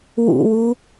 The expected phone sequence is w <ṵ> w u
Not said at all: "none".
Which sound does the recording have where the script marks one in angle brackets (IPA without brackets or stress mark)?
ṵ